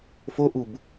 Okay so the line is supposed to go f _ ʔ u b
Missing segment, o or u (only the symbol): o